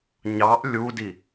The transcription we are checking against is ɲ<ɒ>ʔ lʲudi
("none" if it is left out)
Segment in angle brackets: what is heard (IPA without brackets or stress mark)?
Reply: ɑ